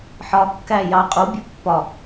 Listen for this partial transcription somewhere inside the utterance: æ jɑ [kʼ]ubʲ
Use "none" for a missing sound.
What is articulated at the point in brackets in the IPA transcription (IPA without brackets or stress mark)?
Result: qʼ